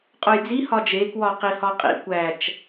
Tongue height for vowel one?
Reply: mid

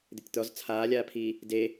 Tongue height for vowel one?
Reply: high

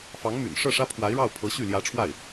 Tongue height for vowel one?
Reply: low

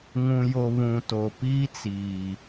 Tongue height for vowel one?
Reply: high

